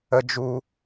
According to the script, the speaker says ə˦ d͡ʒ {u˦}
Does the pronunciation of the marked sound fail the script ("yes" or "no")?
no